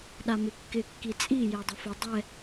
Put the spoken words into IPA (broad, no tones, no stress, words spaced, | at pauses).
ɗamɪkːɪ kːit͡sʼi jɛdˤʊfʊ dˤɛ